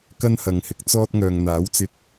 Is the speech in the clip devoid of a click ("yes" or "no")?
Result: yes